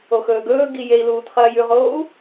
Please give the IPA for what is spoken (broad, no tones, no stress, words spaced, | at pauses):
oxɵːɡɵː ɡijei̯luːt χɐːjʉʁoːu̯